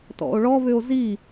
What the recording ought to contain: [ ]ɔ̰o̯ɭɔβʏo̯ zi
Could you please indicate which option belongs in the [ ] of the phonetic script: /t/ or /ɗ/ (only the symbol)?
t